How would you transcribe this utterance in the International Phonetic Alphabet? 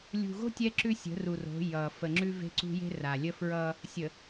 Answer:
lʲṳ˨ɣo̤˦ tʲɛ˦ǁʉ˦ sʲə̤˨˦ru˨ro̤˨˦ jʌ˨ fə˨ŋ͡ǁʉ˦ve̤˦ǀṳ˦ je̤˦ra˨lʲə˦fɹʌ˦ | sʲə˨

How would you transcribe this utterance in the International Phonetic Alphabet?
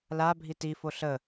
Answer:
labʱi tifo ɬə

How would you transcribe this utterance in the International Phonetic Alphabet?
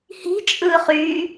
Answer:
hi̤t͡ʃʼɯːχyː

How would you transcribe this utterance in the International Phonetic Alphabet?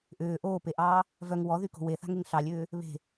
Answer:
ʔʏː ʔoːpeʔɑː | vœŋ wɔðyko̤ weθa̤ŋeŋ ɬɑlʲʏː | βe̤

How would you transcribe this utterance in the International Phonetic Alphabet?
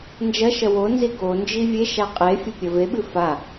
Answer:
nd͡ʒɐʃɐ wonzi ɡond͡ʒi vʲeʃa qʼefʲɐ pʲɐveɓɨ fa

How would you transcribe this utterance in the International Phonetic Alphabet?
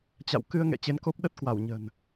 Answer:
t͡ɕa̰˧˨w kɨ˧ə̯ŋɛ̰˧˨ t͡ɕe˨˦nko˦˥p̚ɗə˦˥t̚ kwa˧˩wɲə̤˨˩n

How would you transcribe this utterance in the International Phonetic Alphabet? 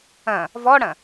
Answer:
ɐ̃ | vɔɽɐ̃

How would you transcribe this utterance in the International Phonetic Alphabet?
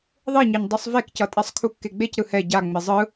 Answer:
ðˤeɲɛɲ dˤisˤvekcʌtʼɛsˤ kʰukːeɡ͡bec ɾɯhɛ ɟa ŋ͡mezˤɯ

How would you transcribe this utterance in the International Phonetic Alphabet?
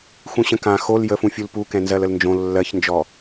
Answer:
xũɕə̃kã xol jəfũfʲul pukɛ̃ nzɜləlnd͡ʒõ lːɜçnd͡ʒɔ

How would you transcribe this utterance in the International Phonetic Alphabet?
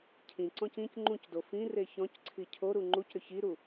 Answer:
cʰĩǀɔ̃c ĩc ŋ͡ǃũcdo fĩ reçɔ̃cǀʰi cʰoɾu ŋ͡ǃucɾʏ çiɾu

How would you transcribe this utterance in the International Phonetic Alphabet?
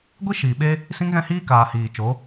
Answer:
ɡʷi˦ʃiː˨ɓe˦ | sĩ˦ŋɣɛ̃˦hiː˦kaː˨ hiː˨ t͡ʃo˨˦

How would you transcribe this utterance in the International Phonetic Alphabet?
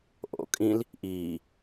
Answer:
ʔo̰ kʼĩl | ʔiː

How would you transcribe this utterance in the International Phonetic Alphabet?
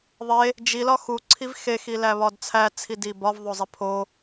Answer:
ðˤe | d͡ʒilɒ xuǀʰiv xexilæβɒd t͡sʰæt͡sʰidi bɒvðˤozˤi pʰo

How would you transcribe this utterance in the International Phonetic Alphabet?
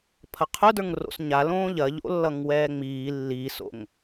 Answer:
pʰɐqʰʊdə˞ŋro̰s ɲalõː ʎɐʎo̰lːʌŋ wɛːŋ͡miː lːiːso̰ŋ

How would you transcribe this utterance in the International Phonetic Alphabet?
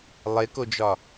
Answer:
lˠekod͡ʒɒ

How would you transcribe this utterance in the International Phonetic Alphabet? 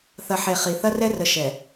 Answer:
θɐ˨ħe˨ χi˨ θɐ˦rɛ˦rə˨ ʃɛ˨

